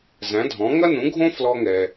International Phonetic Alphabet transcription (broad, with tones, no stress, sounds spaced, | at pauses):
z æ̃˩˥ dʱ ɔ̃˩˥ ŋ ɐ˥ n ũ˩˥ ɡʱ õ˥ f l ɔ˧ ŋ ɛ˩